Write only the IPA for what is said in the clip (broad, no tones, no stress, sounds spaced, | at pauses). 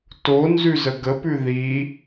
t o n z ʉ z ə ɡ ə p ʉ ð i